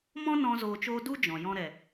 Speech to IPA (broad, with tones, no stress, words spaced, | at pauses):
mɔ̃˦nɔ̃˧ zoː˧t͡ʃoː˦ du˦d͡ʒɔ̃˨ jɔ̃˧ɾɛ˨